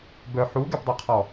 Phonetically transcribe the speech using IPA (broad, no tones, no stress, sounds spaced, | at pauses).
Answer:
b œ ħ u ɡ ɛ p dˤ ø qʰ ɔ